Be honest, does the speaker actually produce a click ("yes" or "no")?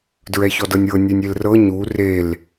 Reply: no